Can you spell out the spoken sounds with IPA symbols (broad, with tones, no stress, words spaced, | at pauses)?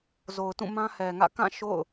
zo˨ʊ̯tũ˦˨ mã˦hɛ˨ŋä̰˦˨ kã˦˨ ʃo̰˦˨ʊ̯